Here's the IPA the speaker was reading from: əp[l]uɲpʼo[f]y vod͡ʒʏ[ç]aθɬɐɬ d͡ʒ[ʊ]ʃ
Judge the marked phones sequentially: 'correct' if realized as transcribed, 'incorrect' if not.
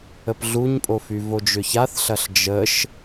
incorrect: ɮ, correct, correct, incorrect: ə

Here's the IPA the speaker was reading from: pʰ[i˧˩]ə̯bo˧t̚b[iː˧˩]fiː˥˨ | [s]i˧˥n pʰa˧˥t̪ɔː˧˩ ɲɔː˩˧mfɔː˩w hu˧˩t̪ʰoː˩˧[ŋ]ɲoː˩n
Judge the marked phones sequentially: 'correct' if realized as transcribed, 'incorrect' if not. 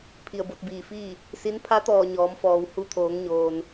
correct, correct, correct, correct

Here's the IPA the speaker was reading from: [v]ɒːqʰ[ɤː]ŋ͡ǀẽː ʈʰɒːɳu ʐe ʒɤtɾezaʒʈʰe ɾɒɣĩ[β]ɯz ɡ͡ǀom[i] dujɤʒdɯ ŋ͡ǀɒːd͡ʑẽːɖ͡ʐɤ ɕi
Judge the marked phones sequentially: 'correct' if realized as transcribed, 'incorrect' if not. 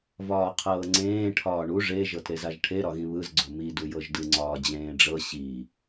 correct, correct, correct, correct

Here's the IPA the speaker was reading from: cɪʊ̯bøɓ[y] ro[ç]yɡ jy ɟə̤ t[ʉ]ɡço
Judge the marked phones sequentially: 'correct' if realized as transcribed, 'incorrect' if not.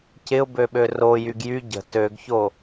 incorrect: ø, incorrect: j, incorrect: ø

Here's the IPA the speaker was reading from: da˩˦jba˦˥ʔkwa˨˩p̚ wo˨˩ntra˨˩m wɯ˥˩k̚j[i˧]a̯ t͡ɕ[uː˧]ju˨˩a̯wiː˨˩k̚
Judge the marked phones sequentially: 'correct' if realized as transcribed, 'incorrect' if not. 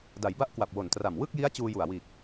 incorrect: i˦˥, correct

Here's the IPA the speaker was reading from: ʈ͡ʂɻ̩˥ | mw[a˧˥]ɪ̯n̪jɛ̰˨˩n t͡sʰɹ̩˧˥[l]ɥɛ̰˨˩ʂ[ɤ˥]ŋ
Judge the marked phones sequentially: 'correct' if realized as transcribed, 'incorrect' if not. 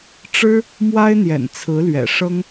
incorrect: a˥, correct, correct

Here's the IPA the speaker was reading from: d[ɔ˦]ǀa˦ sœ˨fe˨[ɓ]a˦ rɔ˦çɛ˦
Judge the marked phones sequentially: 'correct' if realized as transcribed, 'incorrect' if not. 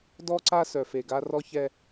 correct, incorrect: ɡ

